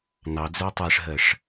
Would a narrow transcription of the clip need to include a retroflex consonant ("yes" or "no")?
yes